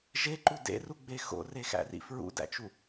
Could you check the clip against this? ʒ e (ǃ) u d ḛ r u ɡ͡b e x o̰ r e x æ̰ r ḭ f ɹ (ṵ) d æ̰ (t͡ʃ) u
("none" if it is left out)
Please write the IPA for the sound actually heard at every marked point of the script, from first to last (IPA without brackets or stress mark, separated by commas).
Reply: ǃ, ṵ, t͡ʃ